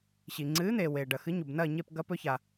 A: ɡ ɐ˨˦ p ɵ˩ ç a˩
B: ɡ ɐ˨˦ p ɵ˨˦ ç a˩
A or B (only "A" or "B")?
B